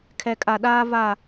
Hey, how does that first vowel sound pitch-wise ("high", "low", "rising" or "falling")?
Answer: low